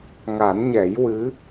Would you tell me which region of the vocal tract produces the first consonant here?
velum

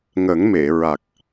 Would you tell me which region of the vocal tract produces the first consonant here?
velum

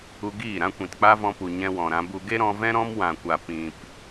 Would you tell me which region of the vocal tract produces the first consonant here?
velum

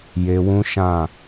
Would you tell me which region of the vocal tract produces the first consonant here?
palate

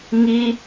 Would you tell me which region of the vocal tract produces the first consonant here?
velum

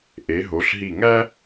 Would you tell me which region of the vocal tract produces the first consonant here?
throat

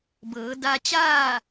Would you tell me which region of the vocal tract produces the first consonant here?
lips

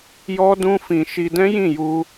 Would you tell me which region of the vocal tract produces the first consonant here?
palate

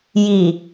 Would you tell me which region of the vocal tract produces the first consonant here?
palate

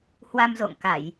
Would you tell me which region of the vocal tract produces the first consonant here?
throat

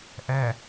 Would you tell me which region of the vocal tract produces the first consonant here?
throat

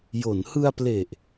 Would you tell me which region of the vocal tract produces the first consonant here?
palate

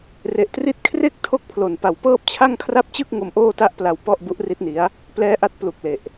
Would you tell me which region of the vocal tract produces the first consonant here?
tongue tip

